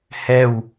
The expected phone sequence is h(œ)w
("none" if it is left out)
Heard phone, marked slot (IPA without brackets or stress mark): ɛ